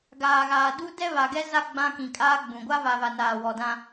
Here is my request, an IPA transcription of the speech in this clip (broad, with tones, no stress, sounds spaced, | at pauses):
ɡ aː˨ ɣ aː˨ d u˦ d ɛ˦ β a˨ ɡ ɛ˦ z a˦ ɡ͡b ã˦ k ĩ˨ kʼ aː˦ ɡ͡b ũ˨ ɡʷ a˦ v a˨ v a˨ n aː˨ w ɔ˨ d ã˦